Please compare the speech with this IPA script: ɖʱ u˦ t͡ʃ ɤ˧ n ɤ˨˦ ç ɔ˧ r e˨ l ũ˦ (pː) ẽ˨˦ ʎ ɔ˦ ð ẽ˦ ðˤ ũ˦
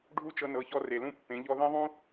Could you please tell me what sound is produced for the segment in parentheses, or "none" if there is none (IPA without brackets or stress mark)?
pː